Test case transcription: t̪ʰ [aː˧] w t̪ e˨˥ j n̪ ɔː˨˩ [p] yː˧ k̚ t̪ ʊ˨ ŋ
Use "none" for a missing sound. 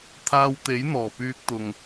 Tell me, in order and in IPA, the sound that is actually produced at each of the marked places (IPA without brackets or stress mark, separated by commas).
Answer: aː˧, p